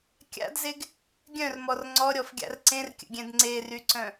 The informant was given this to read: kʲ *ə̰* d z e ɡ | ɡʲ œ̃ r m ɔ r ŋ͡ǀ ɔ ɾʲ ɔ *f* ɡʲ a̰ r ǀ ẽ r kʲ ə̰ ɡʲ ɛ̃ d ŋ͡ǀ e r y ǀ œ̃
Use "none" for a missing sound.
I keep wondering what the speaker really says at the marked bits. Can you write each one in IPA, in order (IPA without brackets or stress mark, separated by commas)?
a̰, f